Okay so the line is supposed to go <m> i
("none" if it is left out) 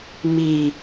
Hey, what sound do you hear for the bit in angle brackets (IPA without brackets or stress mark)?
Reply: m